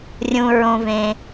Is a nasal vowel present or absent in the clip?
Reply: present